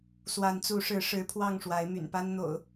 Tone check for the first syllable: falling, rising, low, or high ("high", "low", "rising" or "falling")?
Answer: rising